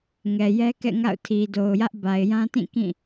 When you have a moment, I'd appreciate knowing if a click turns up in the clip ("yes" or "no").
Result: no